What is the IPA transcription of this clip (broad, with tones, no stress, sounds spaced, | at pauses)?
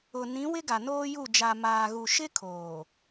ʊ˨ n ĩ˨˦ w ɪ˦ ɡ a˨ n oː˦ j u˦˨ d͡ʒ a˨ m aː˨ ɣ u˨ ʃ ɪ˦ kʰ oː˨